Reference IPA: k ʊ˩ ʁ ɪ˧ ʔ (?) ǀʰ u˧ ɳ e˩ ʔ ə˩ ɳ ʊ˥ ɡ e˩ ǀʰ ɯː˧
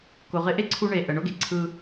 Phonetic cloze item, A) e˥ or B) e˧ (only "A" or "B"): A